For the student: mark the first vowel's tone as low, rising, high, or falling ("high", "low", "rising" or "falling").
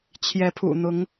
rising